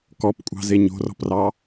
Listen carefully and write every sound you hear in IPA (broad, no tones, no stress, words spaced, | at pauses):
kɔpkʷʼɑ̤ze ɲo̤rɔ̤prɑ